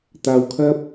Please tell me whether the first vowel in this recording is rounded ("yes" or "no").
no